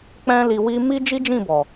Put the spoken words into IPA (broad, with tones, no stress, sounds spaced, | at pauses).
k͡p ɛ̃˦ l i˧ w i˦ m i˦ d͡ʒ i˦ d͡ʒ ĩ˦˨ b ɔ˨